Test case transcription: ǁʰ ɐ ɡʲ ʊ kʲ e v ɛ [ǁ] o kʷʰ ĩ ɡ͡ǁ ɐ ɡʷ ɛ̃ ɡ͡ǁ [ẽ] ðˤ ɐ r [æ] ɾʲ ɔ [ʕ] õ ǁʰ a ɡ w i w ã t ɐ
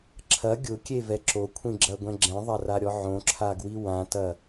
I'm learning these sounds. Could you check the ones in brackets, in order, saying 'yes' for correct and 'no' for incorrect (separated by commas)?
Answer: yes, no, no, yes